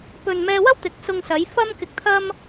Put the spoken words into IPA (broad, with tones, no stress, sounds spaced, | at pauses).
p ɵ˨ n m ɛː˧ w ɐ˥ w t̪ ɪ˨˥ k̚ s ʊ˧ ŋ s ɐ˨˧ j f ɐ˥ m k ɪ˧ k̚ t̪ʰ ɐ˥ m